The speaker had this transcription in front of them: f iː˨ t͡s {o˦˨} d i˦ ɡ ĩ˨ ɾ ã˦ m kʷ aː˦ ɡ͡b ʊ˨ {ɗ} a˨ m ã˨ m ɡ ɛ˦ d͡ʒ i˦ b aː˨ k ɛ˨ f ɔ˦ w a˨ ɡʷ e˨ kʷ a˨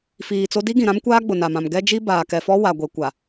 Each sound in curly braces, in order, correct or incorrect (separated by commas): incorrect, incorrect